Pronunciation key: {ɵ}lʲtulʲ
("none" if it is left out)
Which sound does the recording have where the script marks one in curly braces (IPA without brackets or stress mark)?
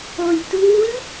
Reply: o